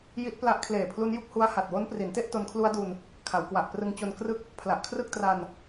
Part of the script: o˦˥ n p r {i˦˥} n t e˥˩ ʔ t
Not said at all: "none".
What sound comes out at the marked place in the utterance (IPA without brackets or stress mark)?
i˩˦